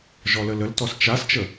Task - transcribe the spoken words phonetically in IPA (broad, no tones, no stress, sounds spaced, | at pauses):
ʒ ɔ l ə l ə l t ɔ s t͡ʃ a s t͡ʃ ə